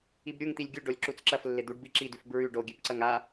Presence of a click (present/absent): present